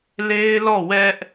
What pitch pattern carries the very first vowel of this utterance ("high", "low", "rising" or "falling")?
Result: high